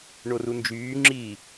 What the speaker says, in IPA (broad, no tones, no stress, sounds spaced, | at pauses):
ɳ o r u n d͡ʒ yː ŋ͡ǁ i